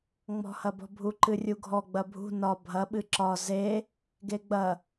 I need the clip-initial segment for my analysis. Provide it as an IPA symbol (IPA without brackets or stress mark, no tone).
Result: ŋ͡m